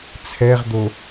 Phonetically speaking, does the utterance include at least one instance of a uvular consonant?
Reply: yes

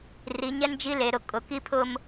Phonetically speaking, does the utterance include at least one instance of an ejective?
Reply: yes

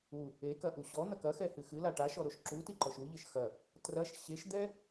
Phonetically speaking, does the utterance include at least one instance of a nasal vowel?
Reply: no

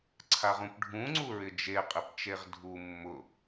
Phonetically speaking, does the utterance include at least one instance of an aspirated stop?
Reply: yes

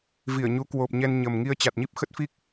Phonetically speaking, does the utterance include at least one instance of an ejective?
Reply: no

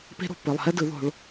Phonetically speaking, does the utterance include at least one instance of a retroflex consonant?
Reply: yes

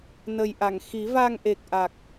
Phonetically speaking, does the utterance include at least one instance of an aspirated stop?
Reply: no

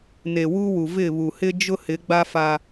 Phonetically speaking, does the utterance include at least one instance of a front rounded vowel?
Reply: no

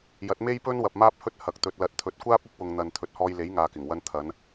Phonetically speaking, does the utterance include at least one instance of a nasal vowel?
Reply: no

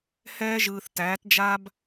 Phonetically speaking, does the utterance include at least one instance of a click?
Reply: no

